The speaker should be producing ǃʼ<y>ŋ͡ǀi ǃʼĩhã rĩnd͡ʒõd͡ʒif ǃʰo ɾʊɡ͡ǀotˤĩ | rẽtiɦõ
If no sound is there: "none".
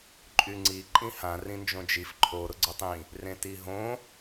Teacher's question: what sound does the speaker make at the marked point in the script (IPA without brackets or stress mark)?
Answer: y